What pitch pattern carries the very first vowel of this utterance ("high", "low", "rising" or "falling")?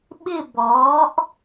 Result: falling